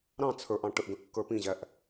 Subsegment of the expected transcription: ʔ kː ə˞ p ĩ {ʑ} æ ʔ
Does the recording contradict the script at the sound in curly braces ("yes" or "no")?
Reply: no